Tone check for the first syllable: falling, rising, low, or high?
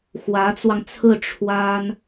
rising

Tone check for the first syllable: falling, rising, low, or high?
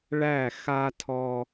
falling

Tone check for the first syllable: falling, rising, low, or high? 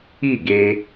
falling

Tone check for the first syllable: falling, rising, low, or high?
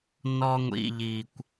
high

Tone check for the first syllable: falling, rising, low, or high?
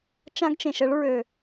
high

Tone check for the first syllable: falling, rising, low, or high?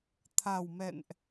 low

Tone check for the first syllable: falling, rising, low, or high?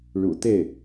low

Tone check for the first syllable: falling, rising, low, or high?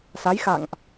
rising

